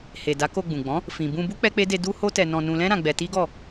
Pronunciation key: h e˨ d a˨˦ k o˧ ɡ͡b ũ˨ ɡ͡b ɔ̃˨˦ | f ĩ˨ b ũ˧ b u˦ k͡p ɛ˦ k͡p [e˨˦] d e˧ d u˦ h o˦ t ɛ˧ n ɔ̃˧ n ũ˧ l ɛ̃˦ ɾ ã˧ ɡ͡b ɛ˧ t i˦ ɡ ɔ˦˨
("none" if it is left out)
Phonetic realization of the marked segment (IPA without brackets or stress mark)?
e˦